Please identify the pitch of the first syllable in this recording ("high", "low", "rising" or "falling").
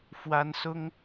high